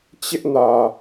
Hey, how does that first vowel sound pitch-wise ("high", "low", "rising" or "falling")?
high